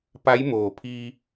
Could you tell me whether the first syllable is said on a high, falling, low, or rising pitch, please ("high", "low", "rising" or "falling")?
rising